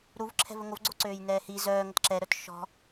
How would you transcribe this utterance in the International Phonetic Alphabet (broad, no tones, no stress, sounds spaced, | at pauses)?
ɾ u v ǁʰ ɛ̤ v ə ŋ o v ɡ͡ǀ o ǀ øː j n ɛː h i z œː ŋ ə t ǁ ɛ ɾ œ t ʃ ɔ̤